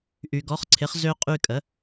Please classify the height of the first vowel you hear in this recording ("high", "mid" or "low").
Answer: high